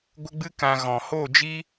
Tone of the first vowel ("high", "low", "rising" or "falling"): high